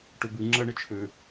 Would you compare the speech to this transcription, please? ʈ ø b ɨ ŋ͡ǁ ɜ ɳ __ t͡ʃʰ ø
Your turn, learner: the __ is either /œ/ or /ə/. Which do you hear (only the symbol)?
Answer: ə